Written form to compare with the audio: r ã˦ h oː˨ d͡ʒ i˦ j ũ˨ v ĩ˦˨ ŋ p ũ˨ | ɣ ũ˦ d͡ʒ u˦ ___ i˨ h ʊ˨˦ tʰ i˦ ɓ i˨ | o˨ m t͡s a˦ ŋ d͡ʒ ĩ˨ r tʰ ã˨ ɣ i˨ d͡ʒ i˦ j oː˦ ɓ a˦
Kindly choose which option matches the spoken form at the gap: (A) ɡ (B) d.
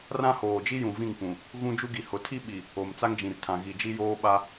A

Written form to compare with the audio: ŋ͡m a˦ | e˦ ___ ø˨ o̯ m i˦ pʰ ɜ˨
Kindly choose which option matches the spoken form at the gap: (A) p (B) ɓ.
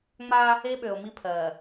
B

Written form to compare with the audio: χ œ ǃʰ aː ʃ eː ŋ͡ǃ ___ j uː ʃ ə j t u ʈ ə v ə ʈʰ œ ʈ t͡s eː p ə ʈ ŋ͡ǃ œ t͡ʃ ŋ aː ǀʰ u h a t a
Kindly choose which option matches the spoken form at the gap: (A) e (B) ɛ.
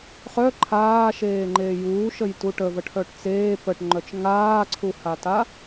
A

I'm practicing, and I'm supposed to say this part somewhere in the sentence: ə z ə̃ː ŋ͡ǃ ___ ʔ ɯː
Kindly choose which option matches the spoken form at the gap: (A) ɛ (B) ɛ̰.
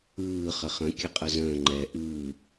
A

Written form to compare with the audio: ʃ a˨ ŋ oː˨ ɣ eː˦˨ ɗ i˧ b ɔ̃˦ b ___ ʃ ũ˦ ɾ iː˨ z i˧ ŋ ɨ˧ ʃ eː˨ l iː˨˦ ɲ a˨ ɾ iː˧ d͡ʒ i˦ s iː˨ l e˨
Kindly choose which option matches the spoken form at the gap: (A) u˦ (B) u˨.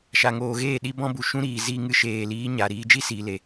B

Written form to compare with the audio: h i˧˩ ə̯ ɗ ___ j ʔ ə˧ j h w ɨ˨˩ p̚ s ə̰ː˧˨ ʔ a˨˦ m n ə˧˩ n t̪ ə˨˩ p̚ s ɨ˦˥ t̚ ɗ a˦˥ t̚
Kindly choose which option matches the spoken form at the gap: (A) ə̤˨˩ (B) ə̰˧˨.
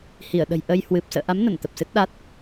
A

